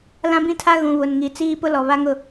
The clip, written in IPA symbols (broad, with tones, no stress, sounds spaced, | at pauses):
l ã˦ b ĩ˦ tʰ a˦ ɣ ũ˨ β ʊ˨ n ŋ i˨ t͡s iː˦ p ʊ˦ l ɔ˨ β a˦ ŋ ʊ˦˨